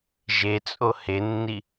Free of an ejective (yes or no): no